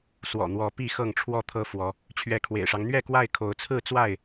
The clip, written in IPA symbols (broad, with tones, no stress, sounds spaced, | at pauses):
s w ɔ̰˨˩ n̪ w ɔ˨˦ p i˥˨ x ɤ˥˨ ŋ ʈ͡ʂʰ w ɔ˥˨ t̪ʰ ɤ˦ f w ɔ˨˦ | t͡ɕʰ ɥ ɛ˨˦ kʰ w ḛ˨˩ ɪ̯ ʂ ɑ˦ ŋ n̪ ɥ ɛ˥˨ k w a˥˨ ɪ̯ kʰ o˨˦ ʊ̯ t͡sʰ ɹ̩˥˨ t͡s w a˥˨ ɪ̯